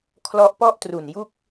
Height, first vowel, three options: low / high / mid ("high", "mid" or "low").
mid